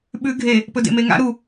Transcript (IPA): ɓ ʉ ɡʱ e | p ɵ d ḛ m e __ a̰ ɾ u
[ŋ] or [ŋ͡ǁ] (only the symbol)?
ŋ